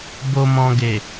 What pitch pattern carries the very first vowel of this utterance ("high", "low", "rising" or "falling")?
low